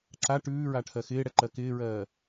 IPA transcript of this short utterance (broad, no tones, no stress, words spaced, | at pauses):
ǁa ʈʉːɹaʈʰɜ xɪːɽɛǃɜ kɪːɹɜː